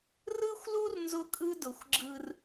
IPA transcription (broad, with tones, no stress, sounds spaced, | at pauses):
r ɯ˦ xʷ l u˦ r n z ʊ˦ kʼ ɯ˦ d ʊ˨ xʷ ɡ͡ǁ ɯ˦ r